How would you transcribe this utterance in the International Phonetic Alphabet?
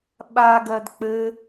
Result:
ɓ a ɡ ɜ d k͡p ɘ

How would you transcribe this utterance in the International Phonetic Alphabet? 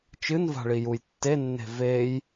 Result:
t͡ʃ ɨ n v a̤ ɭ i j u j tː e nː e̤ v e j

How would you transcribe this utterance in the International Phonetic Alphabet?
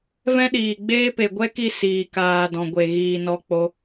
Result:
v ɛ̃˦ ɗ iː˨ ɡ͡b eː˦ p e˨ ɡʷ ɛ˦ k i˦˨ s iː˨ k aː˨ d ɔ̃˨ ɡʷ e˨ ɣ iː˨ n ɔ˧ k͡p o˧

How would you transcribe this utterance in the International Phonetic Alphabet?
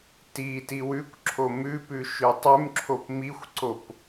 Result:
t i t i w ʉ kʷ ǁʰ o m ʉ p ʉ ʃ ʉ tˤ ʉ m ǁʰ o p m i xʷ ǀ o p

